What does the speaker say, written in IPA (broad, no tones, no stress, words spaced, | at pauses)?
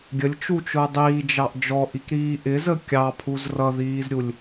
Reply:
ɡʲəlʲt͡ʃut͡ʃʊə̯ dˤiːd͡ʒɑʔ d͡ʒɔʔikɾiː ʔɪzə kʲɑpʰuz rʌðiːzɾʲulʲ